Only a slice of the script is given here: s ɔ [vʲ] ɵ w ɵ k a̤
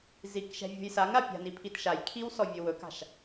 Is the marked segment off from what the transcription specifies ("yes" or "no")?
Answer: no